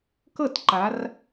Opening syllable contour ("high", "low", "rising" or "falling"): falling